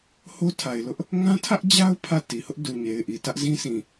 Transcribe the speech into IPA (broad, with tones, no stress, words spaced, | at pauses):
ho˦tʰa˨ɪ̯lʊ˦ʔ | ŋã˦tʰä˦ʔd͡ʑa˦ʊ̯ pʰä˦˨ti˨hʊ˦ʔ du˨ɲe˨ɪ̯ʔi˨ tä˦ʔzĩ˦sʰĩ˨